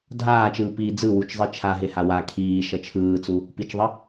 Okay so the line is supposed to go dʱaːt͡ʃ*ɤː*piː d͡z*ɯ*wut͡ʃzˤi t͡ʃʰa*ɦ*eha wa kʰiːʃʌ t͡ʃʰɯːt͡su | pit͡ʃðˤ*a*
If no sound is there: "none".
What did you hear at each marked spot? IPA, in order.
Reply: ɯː, ɯ, ɦ, ʌ

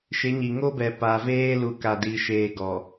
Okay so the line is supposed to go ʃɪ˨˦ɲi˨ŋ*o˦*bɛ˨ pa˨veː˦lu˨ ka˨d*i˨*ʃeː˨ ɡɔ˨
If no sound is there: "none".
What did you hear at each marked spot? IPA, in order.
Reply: o˦, i˨

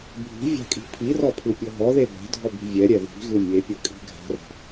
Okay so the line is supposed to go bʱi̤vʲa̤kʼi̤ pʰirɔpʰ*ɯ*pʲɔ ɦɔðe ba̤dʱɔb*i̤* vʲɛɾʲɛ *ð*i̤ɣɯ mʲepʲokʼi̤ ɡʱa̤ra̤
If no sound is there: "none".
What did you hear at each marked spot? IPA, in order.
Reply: ɯ, i̤, ð

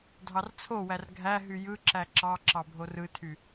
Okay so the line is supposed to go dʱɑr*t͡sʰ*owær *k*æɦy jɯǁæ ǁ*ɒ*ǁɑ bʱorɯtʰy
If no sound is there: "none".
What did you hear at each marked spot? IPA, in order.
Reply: t͡sʰ, ɡʱ, ɑ

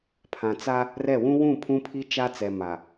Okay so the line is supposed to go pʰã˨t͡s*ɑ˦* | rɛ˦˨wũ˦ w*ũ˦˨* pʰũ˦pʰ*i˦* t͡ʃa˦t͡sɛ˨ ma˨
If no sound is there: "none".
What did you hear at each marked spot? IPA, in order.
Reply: a˦, ũ˦˨, i˦

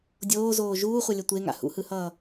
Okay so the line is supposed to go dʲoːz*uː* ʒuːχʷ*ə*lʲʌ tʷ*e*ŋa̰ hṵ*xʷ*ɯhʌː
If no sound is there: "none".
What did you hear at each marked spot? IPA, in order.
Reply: oː, ʌ, e, h

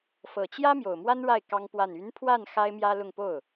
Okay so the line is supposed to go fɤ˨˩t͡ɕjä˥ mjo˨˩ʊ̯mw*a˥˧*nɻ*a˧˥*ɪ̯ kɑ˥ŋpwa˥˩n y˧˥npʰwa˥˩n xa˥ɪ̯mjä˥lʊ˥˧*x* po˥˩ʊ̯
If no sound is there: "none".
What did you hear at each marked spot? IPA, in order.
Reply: a˥, a˥˩, ŋ

